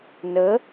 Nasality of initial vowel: oral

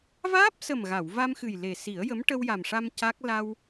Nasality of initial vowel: oral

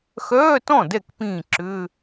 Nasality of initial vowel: oral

